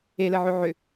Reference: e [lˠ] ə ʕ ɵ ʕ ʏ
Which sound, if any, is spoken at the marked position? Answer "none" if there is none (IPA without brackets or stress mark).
l